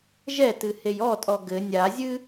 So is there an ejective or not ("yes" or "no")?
yes